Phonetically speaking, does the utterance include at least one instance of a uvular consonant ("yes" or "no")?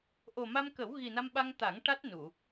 no